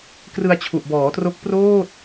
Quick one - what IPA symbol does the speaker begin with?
k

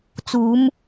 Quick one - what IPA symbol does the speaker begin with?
t͡s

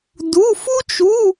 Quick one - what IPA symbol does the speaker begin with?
d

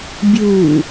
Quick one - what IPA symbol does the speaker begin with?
bʲ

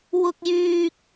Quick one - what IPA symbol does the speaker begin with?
w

